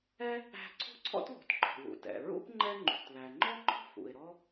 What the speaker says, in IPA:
ɛ˥ | æ̤˥ ǀʰ ṳ˥ ǀʰ ɔ̰˥ t ð ṳ˩ t ǃ ɔ̤˩ w ṵ˩ t ɛ̰˩ ɹ ṵ˥ p ŋ͡ǃ ɛ˥ ŋ͡ǃ ṳ˩ t ð æ˩ ŋ͡ǃ ɔ˥ ŋ͡ǃ ɔ̤˥ f ṵ˩ ɪ̯ ɾ ɔ˥

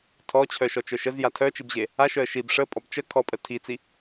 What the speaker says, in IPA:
tʰ ɔ t͡ɕʰ œ ʃ ɔ t͡ʃ œ ʃ ə z j a tʰ œ t͡ʃ i b ʑ e | a ʃ œ ə̯ ʃ i b ʂ ə pʼ ɔ b t͡ʃ ə kʰ ɔ pʼ ə tʰ i t͡s i

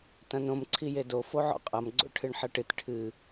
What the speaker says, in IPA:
t ɐ̃ n õ m ǀʰ i j e d o f o ʕ ɔ̰ qʼ ɐ m ɡ͡ǀ o̰ ʈʰ ɨ ɳ ħ ɐ ʈ ɨ t ʈʰ ɨ

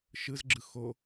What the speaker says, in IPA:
ʃ ɯ z ɡ͡ǁ ɯ x o

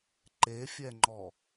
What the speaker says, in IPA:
ǃ e fʲ ɛ ŋ͡ǃ ɔ

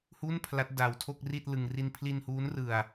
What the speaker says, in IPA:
h u˥˩ n pʰ l a˦˥ t̚ d a˧ w tʰ o˥˩ k̚ r i˥˩ t̚ l ɯ˧ ŋ r i˧ n pʰ l i˧ n h uː˦˥ n r ɯ˧ a̯

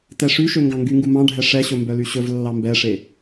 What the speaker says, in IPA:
t ɛ ʂ y ʃ ø ŋ ɡ ɑ̃ ŋ ɡ y ŋ ɡ u m ɑ̃ ɖʱ ɛ ʂ ɛ ɕ ɵ m b œ l y ɕ ɵ v lː ɑ m b ɛ ʂ e

